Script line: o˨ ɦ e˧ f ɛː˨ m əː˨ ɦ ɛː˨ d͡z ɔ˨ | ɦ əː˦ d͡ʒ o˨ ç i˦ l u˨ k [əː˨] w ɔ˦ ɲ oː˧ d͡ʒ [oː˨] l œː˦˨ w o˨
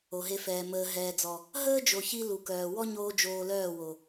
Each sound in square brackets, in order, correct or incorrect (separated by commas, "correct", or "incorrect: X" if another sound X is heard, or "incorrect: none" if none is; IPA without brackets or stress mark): incorrect: œː˨, correct